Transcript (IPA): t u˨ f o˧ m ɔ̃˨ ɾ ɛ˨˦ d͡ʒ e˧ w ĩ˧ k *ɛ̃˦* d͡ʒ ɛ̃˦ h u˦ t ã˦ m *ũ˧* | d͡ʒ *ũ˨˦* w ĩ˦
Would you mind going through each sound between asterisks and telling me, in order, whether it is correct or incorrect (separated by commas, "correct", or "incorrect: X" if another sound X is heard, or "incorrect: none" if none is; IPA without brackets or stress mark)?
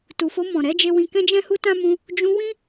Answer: correct, correct, incorrect: ũ˧